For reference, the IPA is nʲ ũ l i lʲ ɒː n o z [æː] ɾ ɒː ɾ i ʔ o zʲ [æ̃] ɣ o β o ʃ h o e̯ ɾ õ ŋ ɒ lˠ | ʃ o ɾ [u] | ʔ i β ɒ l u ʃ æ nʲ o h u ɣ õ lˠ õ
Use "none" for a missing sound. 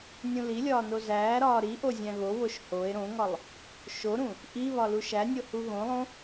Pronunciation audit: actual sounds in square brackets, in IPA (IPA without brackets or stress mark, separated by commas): æː, æ̃, ũ